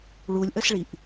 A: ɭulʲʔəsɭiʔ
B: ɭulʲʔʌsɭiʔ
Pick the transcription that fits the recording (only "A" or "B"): A